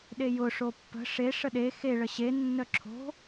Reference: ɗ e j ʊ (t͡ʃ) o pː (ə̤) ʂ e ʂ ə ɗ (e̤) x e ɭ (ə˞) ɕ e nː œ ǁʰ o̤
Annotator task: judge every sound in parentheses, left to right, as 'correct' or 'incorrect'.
incorrect: ʂ, correct, incorrect: e, incorrect: ə

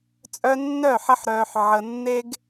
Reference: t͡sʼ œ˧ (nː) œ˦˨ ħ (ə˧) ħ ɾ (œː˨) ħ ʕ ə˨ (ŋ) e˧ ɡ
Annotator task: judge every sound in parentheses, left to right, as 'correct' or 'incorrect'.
correct, correct, correct, incorrect: nː

